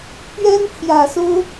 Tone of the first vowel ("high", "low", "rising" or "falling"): high